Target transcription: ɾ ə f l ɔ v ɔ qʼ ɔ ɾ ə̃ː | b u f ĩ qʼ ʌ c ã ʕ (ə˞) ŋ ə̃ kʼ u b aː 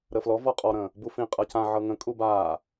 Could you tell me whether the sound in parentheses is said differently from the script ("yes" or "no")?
yes